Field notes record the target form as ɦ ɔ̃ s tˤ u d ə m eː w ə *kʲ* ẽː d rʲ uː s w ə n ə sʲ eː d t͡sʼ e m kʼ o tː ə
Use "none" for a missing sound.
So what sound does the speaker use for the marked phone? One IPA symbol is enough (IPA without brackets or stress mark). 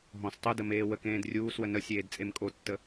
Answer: k